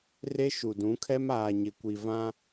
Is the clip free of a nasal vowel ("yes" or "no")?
no